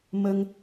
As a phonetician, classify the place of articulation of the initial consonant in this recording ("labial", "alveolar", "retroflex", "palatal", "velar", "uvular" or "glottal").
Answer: labial